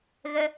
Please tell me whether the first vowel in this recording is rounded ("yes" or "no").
no